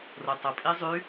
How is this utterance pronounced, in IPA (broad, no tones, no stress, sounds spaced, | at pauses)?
r o tˤ ə pʼ i zˤ y